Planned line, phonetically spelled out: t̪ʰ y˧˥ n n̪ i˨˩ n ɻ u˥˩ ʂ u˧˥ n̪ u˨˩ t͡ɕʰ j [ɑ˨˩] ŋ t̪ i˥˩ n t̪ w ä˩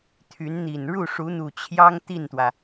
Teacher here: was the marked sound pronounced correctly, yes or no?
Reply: no